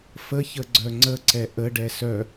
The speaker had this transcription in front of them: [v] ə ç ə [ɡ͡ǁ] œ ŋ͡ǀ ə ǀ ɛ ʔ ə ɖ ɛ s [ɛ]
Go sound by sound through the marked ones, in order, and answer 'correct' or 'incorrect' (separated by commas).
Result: incorrect, incorrect, incorrect